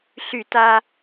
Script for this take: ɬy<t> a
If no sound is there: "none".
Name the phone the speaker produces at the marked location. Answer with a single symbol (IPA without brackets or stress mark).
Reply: t